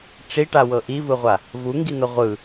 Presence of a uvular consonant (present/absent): present